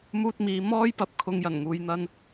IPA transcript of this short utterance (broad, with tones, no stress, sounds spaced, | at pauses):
m uː˧ t̚ m iː˨ m ɔː˥ j p ɐ˧ p̚ kʰ ʊ˨˧ ŋ j ɐ˨˩ n ŋ uː˨ j n̪ ɐ˧ n